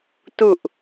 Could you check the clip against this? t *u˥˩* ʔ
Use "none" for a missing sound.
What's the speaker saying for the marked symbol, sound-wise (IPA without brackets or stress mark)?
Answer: u˨˩